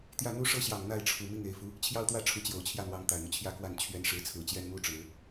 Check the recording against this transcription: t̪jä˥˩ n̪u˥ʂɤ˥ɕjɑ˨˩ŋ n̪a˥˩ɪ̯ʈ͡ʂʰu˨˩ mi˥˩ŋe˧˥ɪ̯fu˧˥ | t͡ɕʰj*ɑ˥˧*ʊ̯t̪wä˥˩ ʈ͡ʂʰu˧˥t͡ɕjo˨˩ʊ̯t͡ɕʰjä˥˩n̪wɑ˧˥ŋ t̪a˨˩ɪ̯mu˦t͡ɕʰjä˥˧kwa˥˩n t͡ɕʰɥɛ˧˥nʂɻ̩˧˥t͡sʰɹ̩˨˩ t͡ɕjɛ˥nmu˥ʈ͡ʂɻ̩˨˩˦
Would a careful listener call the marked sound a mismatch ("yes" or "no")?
no